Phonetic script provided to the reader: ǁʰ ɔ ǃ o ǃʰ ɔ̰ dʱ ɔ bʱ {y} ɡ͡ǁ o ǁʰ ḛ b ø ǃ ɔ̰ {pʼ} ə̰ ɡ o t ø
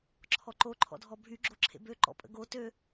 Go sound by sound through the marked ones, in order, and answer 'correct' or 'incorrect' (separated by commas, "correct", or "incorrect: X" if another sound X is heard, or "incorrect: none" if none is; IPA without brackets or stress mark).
correct, correct